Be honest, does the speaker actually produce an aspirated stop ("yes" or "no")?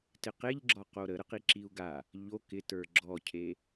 yes